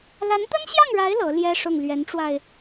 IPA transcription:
la˧˥nt̪ə˥nɕjɑ˥˩ŋɻa˧˥ɪ̯ lɤ˧˥ljɛ˥ ʂʊ˥˩ŋ lɥɛ˧˥nʈ͡ʂwa˧ɪ̯

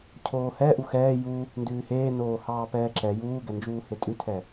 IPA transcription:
cʰoːhɛ ʔuxɛː ju | ndʉːheːnoːhɑː pɛːǁɛ juːɡɛnd͡ʒuː hetʼʉtʰɛ

